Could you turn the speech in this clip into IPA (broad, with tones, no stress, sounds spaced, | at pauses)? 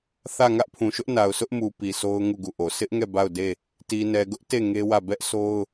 θ ä˦˨ ŋ ä˦ ʔ pʰ ũ˨ ʃ ʊ˦ ʔ n a˨ ʊ̯ s ʊ˦ ʔ m u˨ p i˨ sʰ o˦ ʊ̯ ŋ u˦˨ ɡ u˦˨ ʔ o˨ sʰ ɪ˦ ʔ ŋ ɛ˦˨ b a˦˨ ʊ̯ d e˦˨ | t i˨ n ɛ˨ ɡ ʊ˦ ʔ t e˦˨ ŋ e˦ w ä˦˨ b ɛ˦ ʔ sʰ o˦ ʊ̯